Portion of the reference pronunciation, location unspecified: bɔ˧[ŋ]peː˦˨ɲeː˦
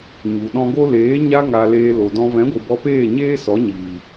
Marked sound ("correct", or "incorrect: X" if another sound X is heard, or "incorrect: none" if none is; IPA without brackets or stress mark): incorrect: none